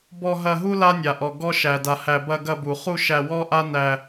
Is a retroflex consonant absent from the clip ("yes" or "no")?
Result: yes